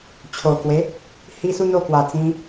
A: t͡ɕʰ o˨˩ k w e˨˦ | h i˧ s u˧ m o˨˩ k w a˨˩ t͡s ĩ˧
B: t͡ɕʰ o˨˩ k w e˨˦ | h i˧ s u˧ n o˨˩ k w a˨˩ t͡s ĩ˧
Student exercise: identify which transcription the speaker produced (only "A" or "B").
B